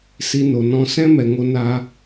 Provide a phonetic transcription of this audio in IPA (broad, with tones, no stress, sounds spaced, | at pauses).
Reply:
s i˧ n o˨ n ɔ̃˦ s ɛ̃˦ m ɛ˨ ŋ o˧ n aː˧